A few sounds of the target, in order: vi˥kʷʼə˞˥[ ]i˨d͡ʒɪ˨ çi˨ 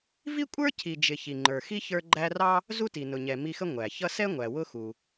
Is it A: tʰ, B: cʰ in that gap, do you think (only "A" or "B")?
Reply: B